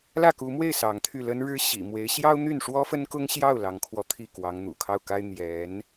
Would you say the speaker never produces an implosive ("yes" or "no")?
yes